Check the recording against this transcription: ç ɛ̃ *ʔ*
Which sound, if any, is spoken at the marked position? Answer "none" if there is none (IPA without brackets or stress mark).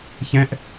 ʔ